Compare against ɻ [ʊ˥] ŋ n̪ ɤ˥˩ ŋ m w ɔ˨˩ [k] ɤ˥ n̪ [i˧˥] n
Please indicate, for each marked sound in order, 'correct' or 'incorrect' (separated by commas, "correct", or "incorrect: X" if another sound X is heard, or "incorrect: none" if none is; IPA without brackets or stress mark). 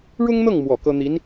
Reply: correct, correct, correct